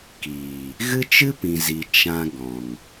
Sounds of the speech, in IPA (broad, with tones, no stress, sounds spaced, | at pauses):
k iː˨ | ɣ ɨ˦ t͡ʃ ɨ˦ p ĩ˨ z i˨ t͡ʃ ã˧ ɡ ɔ̃˨ ŋ